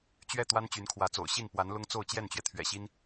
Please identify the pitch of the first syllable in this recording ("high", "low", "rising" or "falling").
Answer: falling